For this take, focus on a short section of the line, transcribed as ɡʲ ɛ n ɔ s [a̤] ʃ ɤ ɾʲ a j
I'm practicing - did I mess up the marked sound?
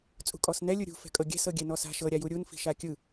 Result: no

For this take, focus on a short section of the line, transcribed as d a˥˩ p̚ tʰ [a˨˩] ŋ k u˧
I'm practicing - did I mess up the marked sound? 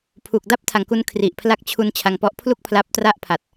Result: no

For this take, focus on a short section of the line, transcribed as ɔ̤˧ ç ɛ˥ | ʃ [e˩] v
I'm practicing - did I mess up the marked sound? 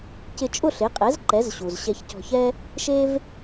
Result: yes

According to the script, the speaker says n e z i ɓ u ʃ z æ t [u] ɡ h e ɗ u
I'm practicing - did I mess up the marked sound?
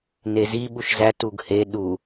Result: no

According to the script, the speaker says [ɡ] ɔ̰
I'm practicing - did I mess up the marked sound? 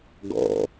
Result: no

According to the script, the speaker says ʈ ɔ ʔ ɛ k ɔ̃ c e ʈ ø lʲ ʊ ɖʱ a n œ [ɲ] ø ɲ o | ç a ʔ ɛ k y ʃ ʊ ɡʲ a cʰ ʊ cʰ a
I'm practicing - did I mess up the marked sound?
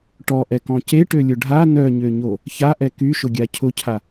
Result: no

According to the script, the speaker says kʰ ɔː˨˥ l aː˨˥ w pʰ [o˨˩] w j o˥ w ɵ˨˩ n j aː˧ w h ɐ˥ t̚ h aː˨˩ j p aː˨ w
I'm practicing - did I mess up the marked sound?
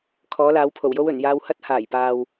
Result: no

